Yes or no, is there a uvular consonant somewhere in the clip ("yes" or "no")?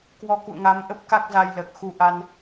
no